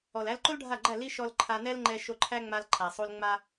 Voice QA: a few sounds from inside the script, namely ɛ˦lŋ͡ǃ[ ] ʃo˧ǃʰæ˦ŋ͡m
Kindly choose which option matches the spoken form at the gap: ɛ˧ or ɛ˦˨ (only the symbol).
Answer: ɛ˧